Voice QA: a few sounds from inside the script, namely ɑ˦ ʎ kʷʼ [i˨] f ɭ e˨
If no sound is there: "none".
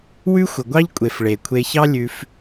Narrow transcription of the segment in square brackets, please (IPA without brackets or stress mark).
e˨